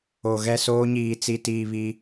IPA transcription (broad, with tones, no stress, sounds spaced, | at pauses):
o˨ ɣ ɛ˦˨ s oː˦ ɲ iː˨ t͡s i˨ t iː˨ β i˦